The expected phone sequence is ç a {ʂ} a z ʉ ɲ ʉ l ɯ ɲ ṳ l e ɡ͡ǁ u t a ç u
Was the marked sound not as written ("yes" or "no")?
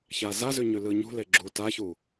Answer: yes